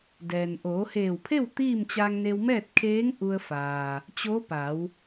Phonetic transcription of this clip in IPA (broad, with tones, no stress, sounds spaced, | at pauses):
d ɛː˩ n ʔ oː˩˧ h eː˧˩ w pʰ e˥˨ w t̪ iː˥˨ m t͡ɕ aː˧ ŋ n e˧ w m ɛː˥˨ t̚ kʰ eː˧˥ ŋ ʔ u˧ ə̯ f aː˩ | t͡ɕ o˧˥ p a˩˧ w